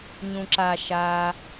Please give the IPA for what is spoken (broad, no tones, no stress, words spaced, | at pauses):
ɲũǁa ʃa